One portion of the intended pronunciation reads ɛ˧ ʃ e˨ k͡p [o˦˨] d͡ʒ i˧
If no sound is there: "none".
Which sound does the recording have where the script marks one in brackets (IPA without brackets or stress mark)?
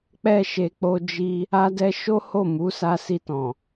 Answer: o˧